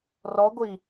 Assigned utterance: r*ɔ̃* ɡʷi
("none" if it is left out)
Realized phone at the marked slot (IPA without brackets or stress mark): ɔ